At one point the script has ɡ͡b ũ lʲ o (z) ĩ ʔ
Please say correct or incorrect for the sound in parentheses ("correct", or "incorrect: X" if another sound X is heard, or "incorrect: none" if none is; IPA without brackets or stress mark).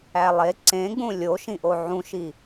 incorrect: ʃ